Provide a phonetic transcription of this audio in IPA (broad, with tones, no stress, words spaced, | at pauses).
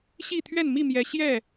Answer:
ɕi˥˨ t̪ʰɥɛ˥˨nmi˥˨mjɛ˨˦ ɕjɛ˥˨